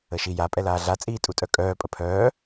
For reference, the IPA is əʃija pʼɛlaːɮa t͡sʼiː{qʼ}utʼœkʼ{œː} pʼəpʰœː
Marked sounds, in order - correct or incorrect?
incorrect: tʼ, correct

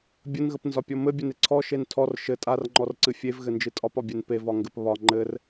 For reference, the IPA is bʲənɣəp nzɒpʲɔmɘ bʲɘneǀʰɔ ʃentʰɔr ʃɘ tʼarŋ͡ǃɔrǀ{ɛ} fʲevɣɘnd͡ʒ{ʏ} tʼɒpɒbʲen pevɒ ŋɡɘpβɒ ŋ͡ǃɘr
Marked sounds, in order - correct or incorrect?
incorrect: ɨ, incorrect: ɨ

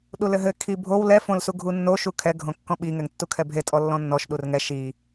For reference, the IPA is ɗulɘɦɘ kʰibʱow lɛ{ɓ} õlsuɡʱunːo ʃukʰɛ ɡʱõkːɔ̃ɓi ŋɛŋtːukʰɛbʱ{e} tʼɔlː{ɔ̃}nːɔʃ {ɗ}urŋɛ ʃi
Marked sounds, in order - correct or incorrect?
incorrect: f, correct, correct, correct

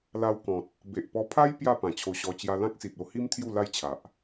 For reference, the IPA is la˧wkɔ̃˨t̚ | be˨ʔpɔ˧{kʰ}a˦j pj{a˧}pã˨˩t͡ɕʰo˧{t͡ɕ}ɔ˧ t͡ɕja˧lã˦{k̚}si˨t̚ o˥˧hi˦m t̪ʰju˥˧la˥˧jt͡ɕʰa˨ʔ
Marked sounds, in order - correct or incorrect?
incorrect: pʰ, incorrect: a˥˧, incorrect: ɕ, correct

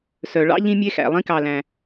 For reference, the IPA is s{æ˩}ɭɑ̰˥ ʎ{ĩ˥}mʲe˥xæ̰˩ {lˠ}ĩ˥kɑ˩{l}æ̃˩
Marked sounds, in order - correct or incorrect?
incorrect: œ˩, correct, correct, correct

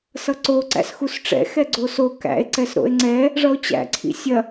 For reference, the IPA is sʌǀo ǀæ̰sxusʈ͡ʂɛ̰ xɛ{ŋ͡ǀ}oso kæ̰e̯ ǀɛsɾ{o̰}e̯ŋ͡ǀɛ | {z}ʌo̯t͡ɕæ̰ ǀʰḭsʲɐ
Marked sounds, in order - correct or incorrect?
incorrect: ɡ͡ǀ, correct, incorrect: ʐ

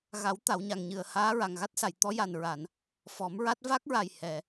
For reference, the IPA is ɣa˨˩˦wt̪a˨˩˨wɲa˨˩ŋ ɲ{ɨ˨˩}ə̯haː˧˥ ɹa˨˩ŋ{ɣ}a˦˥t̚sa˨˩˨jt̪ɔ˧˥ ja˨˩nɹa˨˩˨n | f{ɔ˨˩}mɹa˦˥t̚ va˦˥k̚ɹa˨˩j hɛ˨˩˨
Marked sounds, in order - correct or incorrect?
correct, correct, incorrect: ɔ˨˩˦

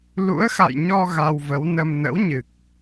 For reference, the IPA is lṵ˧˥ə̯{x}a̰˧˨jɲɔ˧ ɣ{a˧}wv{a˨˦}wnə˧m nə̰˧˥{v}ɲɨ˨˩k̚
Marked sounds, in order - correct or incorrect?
correct, correct, incorrect: ə˨˦, incorrect: w

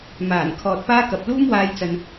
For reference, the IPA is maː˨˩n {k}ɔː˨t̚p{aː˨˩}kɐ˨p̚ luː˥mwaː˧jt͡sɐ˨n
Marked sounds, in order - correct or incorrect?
incorrect: kʰ, incorrect: aː˥

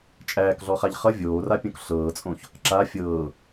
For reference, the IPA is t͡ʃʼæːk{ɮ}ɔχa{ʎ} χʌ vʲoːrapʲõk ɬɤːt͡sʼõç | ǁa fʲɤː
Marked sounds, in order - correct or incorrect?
correct, correct

